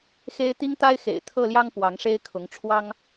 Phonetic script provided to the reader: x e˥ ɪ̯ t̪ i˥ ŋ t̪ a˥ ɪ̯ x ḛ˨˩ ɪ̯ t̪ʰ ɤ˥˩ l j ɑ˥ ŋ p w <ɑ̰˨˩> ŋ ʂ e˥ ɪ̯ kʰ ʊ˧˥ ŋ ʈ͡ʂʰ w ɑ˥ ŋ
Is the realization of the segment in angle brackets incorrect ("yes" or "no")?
yes